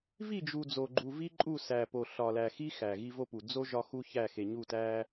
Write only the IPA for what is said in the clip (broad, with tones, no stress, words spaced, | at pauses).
vi˦˨d͡ʒu˨ d͡zo˨ɡ͡ǃu˨vi˦ǃʼu˦˨ sæ˨po˨ ɬɒ˨læ˨xi˦ xæ˨ɣi˦vo˦pu˨ d͡zo˦ ʒɒ˦xu˦çæ˦˨ xe˨ɲu˦˨tæ˦